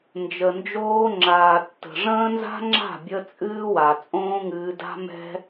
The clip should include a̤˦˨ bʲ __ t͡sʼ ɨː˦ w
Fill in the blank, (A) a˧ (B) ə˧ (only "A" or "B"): B